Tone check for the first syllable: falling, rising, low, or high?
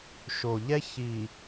low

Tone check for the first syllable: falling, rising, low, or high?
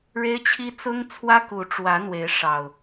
high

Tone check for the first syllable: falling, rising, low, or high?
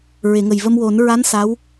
low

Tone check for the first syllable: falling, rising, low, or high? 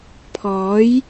rising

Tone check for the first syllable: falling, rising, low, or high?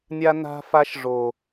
high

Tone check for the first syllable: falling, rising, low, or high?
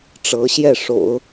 rising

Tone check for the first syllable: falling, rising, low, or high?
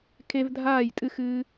high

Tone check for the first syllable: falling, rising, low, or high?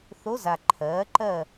rising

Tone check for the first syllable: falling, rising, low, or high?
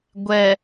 low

